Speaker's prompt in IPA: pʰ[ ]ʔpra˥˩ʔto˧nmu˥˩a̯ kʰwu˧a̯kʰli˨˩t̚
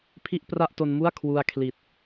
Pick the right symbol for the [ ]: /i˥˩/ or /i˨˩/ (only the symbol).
i˥˩